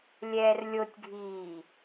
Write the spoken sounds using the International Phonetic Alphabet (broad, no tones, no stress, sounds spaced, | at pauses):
lʲ ɛː r lʲ o tʲ ɡʱ iː